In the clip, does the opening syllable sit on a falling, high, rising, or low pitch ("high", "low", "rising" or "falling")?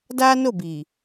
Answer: high